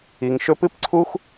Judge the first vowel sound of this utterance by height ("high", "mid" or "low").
high